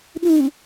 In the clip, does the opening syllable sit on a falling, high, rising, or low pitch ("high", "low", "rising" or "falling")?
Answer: low